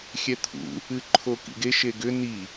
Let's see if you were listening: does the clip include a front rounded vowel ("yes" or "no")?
yes